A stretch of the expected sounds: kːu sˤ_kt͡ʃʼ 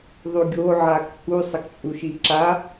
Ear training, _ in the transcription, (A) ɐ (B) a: A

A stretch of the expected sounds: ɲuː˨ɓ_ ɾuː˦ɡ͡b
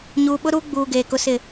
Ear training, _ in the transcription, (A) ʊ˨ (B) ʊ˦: B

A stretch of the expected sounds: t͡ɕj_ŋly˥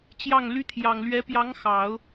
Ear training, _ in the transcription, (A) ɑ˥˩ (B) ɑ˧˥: A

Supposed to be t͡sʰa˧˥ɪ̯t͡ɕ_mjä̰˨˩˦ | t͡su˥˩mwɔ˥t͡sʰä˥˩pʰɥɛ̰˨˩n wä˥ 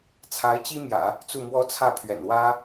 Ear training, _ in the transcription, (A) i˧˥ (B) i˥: B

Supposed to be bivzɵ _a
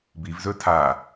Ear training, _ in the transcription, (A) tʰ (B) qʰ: A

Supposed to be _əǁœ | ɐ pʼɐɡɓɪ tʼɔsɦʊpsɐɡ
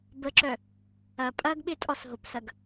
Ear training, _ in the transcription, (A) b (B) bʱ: A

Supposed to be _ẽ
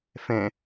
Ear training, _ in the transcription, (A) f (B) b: A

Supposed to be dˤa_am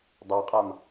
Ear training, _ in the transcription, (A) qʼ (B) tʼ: A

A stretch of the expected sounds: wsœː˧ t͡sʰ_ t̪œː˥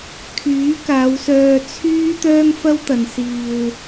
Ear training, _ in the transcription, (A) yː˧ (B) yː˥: B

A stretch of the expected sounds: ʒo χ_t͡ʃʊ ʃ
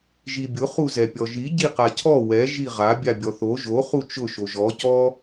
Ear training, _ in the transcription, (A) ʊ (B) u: B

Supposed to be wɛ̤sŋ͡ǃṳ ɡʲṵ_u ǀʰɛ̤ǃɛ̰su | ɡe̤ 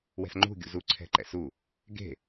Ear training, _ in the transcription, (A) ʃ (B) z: B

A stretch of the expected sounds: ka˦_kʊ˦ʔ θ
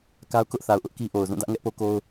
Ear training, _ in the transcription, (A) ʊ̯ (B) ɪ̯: A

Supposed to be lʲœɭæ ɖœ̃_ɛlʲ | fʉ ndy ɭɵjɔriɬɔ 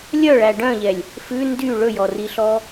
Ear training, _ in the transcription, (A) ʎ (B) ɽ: A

